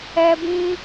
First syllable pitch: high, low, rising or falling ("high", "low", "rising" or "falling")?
high